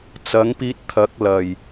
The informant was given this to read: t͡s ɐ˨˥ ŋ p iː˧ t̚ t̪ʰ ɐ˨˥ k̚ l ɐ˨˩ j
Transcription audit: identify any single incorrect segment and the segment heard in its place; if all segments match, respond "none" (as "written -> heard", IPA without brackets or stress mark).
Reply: none